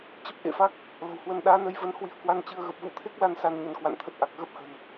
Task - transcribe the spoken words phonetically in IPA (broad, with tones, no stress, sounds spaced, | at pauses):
t͡ɕ ə˦˥ p̚ ʔ ḛ˧˨ f a˦˥ k̚ | l ə̤˨˩ w h w ə˧ n ɗ aː˨˦ n ə˧ j v ə˧ n h w i˧ ə̯ k w a˧ n t͡ɕ ɨ˧ ə̯ ɣ ə˨˩ p̚ v ṵ˧˥ t̪ʰ e˦˥ k̚ l a˧ n s a˧ n ɲ ə˨˦ n k w a̰˧˨ n t̪ʰ ə˦˥ t̚ ʔ a˨˩ k̚ ɣ ə˦˥ p̚ h ə̤˨˩ n